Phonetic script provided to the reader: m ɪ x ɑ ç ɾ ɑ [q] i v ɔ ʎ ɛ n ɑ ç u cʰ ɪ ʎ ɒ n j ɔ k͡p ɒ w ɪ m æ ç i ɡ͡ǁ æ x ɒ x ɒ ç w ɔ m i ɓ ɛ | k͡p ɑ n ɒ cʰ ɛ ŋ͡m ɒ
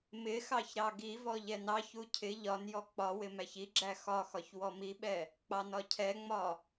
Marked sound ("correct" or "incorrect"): incorrect